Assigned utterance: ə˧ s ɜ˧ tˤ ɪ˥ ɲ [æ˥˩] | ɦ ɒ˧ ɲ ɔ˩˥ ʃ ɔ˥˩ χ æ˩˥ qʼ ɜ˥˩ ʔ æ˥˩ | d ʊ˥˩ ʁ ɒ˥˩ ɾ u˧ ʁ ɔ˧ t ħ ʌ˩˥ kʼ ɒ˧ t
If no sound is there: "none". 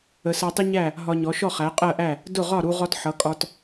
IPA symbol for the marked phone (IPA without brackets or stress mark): æ˥˩